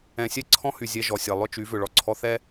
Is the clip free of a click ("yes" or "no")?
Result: no